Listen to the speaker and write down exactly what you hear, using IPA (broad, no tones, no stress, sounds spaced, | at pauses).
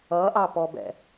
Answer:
ʌ ʔ ɑ p ɔ b ɛ̰